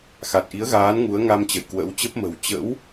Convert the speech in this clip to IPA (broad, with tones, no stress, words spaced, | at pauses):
xa˨˩t̚ʔi˨˦ə̯ɣaː˨˦n ŋu˨˦ə̯ŋa˧m t͡ɕə̰˧˨jkwə̰˧˥wt͡ɕə˦˥p̚ mə̤˨˩w t͡ɕə̰˧˥w